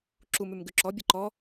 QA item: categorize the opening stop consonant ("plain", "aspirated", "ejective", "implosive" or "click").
click